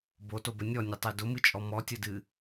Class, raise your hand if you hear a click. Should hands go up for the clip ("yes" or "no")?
no